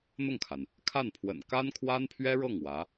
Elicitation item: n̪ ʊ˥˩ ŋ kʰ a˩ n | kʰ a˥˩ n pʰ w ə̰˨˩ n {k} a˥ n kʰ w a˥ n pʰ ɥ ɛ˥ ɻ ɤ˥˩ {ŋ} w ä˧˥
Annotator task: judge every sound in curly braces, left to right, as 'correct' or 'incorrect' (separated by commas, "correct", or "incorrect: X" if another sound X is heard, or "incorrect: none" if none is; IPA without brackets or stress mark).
correct, correct